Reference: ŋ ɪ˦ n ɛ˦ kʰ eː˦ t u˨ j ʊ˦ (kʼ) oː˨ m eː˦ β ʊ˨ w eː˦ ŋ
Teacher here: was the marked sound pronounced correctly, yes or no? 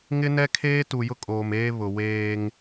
yes